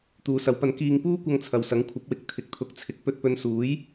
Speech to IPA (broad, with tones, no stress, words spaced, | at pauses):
t̪uː˨˧sɐ˨˧wpɐ˧n kiː˨ŋpuː˧kʷɐ˨ŋ t͡sʰɐ˨wsɐ˨˥ŋ kʷʰɐ˨˥p̚wɪ˨˥k̚ t̪ʰɪ˨k̚t̪ʰʊ˨˥k̚t͡sʰɪ˨˥k̚ pɵ˧t̚pɵ˧nsuː˨˥j